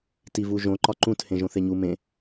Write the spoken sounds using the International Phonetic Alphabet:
t i v u ʒ õ ǃ ɒ ǃ ũ t h ẽ ʒ õ θ e ɲ u m ẽ

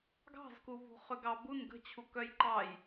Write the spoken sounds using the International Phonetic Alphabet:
ɡ ɑ̤ z k u v ṳ χ ʏ ɡ ɑ b u n ɡ ə̤ t͡ɕʰ u k œ j ǃ ɑ j

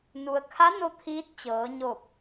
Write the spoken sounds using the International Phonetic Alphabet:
n u˩ ə̯ kʰ a˧˥ n o˧ t̪ʰ iː˧˥ t̚ t͡ɕ ɤː˩˧ ɲ o˧˩ p̚

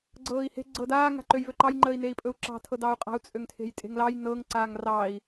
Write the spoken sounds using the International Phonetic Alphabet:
ɡ͡ǀ ɤː i̯ h e̤ ɡ͡ǀ ɤ d aː ŋ a̤ ǃ ø j v ø ǃ ɑ j ŋ͡ǃ əː i̯ n e i̯ pʼ ɵ u̯ ǁ ɑ̤ tʰ ɤ d ɑː u̯ qʼ a̤ u̯ t͡sʼ ø ŋ tʰ e̤ j tʼ e̤ ŋ l ɑ j n ɤ ŋ ǀ aː ŋ r ɑ i̯

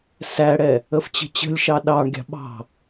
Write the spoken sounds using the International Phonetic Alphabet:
s æ ɽ ɛ | ə f t͡ɕ ə̤ t͡ɕ ə̤ lʲ ʃ ɑ ɗ ɑ ɳ ɡʲ ɑ̤ ɓ ɑ̤

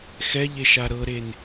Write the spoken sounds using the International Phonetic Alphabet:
x ɛ ʎ e ʃ a ɾ ɤ ɾ e n

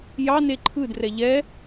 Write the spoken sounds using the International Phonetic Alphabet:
j ɑ n e ǃʰ ɯ d r ɛ ʎ ɛ

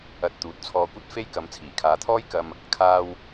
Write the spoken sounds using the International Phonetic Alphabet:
ɐ˨ t̚ t̪ uː˨˥ t̚ t͡sʰ ɔː˧ kʷ ɐ˥ t̚ f e˥ j k ɐ˨˧ m t͡sʰ iː˨˩ kʰ aː˨˧ t̪ʰ ɔː˥ j k ɐ˧ m | kʰ aː˧ w

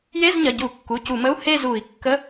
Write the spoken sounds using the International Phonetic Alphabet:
j e˧˥˧ z ɲ ɐ˩˧˩ ɟ u˧˩˧ kː u˩˧˩ c u˧˩˧ m ə˧˥˧ u̯ h e˥˧ z u˧˩˧ i̯ kː ə˧˥˧

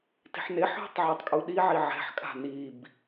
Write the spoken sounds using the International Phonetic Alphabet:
t i̤ ħ n e ħ ɦ ṳ tˤ ʕ a tˤ kʼ u ɗ i ʕ i ʕ ɛ̤ ħ kʼ a̤ n i b

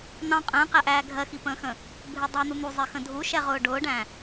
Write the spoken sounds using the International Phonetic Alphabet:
n̪ ɑ̃ qʼ ə̃ː q æ ʔ æː ɡʱ ɜ x i p ə̃ː x ə̃ | bʱ ɪ dˤ ɜ n̪ u n̪ u zˤ ɪ x ə̃ dʱ u ʃ ɛ ʁ ʊː ɖ ʊː ɖ æ̃

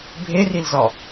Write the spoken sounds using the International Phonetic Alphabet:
bʱ e r i l z ɒ

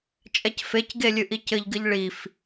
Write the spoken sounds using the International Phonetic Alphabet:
t͡ʃʼ ɛ c f e c ɡ e lʲ ɨ ʔ i c ɘ ʎ ɡ ɨ ʎ ɭ i f

